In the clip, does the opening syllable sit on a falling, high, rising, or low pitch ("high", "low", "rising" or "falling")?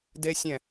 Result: high